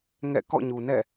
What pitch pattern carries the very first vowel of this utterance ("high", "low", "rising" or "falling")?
falling